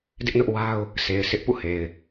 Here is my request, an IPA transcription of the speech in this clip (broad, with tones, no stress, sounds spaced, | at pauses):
d ɪ˦ ʔ n ʊ˦ ʔ w a˦ ʊ̯ | sʰ e˨ ɪ̯ s ɪ˦ ʔ p ṵ˦˨ h e˨ ɪ̯